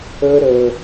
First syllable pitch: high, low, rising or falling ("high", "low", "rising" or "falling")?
high